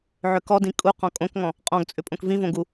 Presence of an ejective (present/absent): present